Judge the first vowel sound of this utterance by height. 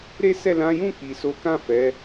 mid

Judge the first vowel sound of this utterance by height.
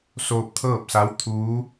mid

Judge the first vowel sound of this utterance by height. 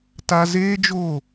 low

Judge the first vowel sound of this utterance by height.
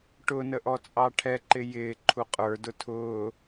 high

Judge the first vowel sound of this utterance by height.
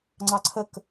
low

